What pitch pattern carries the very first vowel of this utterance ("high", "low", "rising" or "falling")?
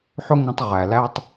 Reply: high